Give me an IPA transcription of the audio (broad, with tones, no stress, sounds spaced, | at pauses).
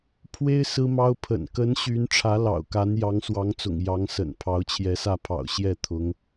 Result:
pʰ w e˥ ɪ̯ s ɹ̩˥ m ɑ˥ ʊ̯ pʰ ə̰˨˩ n k ə˧˥ n ɕ y˧˥ n ʈ͡ʂʰ ä˧˥ l ɑ̰˨˩ ʊ̯ k a˧˥ n j ɑ˧˥ ŋ s w ɑ˧˥ ŋ t͡s ʊ̰˨˩ ŋ j ɑ˧˥ ŋ s ə̰˨˩ n pʰ ɑ˧˥ ʊ̯ t͡ɕʰ j ɛ˧˥ s ä˥˩ pʰ ɑ̰˨˩ ʊ̯ ɕ j ɛ˥˩ t̪ʰ ʊ˧˥ ŋ